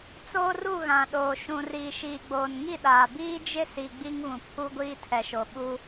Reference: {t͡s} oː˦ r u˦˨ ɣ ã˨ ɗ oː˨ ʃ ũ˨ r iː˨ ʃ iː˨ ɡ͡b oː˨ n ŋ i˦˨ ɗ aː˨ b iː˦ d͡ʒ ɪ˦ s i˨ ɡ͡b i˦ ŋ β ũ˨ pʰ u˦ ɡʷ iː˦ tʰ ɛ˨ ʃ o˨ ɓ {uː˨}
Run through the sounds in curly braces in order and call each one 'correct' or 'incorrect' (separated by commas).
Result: correct, incorrect